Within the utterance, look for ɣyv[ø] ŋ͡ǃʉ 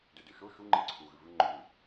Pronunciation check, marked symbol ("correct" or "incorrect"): incorrect